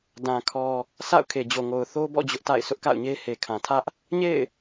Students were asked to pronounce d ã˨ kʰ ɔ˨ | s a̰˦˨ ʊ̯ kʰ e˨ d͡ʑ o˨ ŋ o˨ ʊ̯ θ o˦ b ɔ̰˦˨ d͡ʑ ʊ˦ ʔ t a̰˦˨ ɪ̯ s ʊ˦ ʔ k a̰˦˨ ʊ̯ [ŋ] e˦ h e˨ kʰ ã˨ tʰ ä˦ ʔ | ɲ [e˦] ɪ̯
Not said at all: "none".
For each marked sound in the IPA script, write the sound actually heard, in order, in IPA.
ɲ, ḛ˦˨

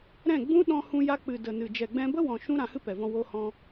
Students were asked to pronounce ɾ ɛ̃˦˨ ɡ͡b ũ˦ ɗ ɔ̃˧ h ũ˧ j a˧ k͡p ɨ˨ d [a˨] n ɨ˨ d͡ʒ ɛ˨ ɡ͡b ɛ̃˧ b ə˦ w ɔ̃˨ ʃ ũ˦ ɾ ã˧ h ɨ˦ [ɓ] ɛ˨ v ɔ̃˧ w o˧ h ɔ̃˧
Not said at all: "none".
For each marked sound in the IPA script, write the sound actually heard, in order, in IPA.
ə˨, p

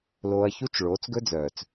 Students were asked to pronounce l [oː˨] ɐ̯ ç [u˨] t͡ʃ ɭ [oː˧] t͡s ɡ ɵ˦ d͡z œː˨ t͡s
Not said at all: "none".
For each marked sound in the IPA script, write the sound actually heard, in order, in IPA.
oː˧, u˦, oː˨˦

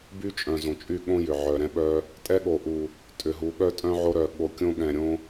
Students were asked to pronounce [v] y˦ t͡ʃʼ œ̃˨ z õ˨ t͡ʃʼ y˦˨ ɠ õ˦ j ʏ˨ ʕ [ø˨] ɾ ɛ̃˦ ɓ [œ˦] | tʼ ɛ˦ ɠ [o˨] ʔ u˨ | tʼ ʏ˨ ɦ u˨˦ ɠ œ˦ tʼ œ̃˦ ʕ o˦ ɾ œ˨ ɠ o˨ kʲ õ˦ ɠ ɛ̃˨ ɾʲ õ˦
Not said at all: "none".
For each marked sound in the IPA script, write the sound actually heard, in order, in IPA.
b, œ˨, œ˦, o˨

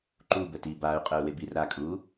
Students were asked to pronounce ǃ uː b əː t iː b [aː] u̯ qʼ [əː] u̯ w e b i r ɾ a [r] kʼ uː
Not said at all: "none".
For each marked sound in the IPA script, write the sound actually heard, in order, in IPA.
aː, əː, none

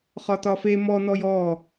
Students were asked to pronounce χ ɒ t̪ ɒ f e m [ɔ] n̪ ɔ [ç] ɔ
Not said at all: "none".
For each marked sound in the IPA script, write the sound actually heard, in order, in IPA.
ɔ, j

